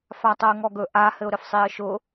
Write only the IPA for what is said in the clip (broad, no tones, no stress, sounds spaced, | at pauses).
f a tˤ ɤ ə̯ ŋ ɔ ɡ ɵ ʔ a h ɘ ʊ̯ ɾ ɘ f sˤ i ə̯ ʃ ʊ